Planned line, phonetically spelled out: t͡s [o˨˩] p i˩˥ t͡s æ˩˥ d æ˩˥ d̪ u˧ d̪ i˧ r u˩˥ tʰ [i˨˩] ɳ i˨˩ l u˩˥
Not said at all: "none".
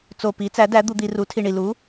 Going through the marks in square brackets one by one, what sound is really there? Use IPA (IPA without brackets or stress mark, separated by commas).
o˨˩, i˨˩